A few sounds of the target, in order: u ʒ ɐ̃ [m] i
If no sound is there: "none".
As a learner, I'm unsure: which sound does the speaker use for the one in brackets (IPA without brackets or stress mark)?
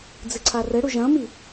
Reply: m